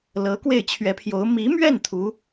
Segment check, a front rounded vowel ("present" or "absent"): absent